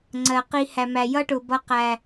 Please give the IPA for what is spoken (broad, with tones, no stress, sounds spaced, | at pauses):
ŋ͡ǀ ɜ˨ q i˧ h æ˨ m æ˨ j ʌ˦ ʈ ʊ˨ b ʌ˧ q æ˨